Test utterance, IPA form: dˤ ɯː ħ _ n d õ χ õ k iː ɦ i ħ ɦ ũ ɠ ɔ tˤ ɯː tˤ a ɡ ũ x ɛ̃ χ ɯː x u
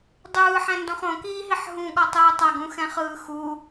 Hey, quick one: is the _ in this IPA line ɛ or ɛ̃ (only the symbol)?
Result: ɛ̃